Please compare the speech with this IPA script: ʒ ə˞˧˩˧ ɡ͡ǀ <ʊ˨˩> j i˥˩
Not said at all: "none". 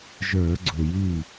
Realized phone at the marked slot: ʊ˨˩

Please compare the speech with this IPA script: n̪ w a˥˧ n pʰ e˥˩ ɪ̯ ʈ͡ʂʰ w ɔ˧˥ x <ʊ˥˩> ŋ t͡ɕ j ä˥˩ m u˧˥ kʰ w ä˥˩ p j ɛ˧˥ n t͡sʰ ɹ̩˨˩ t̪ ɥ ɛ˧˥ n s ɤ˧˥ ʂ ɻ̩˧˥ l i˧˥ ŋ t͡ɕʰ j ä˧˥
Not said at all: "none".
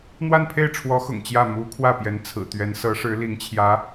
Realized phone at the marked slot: ʊ̰˨˩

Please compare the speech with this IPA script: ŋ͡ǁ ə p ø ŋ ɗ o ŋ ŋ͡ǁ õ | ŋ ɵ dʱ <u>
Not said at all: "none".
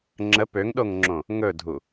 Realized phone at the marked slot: u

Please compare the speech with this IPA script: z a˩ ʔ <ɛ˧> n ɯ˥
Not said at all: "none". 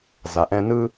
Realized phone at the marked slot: ɛ̃˧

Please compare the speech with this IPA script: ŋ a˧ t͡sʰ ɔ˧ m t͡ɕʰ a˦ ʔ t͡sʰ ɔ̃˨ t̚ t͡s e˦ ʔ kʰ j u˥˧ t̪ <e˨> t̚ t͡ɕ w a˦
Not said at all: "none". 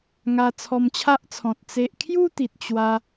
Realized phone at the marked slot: i˨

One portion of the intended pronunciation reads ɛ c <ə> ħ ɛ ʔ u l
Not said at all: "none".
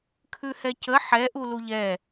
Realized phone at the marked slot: ə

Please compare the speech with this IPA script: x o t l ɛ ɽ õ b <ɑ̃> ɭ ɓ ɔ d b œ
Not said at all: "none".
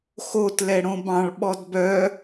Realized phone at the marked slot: ɑ̃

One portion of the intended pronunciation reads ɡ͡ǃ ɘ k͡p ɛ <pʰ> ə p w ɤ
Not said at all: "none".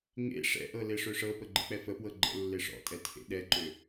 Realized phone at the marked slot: f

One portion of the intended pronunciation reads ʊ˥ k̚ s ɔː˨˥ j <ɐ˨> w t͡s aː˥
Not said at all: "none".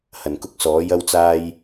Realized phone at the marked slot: ɐ˥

